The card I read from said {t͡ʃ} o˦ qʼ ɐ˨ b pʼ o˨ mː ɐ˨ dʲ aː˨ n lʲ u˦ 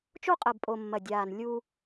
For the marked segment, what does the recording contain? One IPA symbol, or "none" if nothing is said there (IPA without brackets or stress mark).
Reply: t͡ʃ